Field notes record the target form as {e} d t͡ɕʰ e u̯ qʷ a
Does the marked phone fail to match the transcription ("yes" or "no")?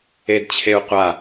no